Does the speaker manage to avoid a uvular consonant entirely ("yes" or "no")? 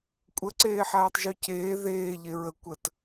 yes